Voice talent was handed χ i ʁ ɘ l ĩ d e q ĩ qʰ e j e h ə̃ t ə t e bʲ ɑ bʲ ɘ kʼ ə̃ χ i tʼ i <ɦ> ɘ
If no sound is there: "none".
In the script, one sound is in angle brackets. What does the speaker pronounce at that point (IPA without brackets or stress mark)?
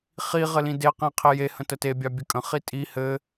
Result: h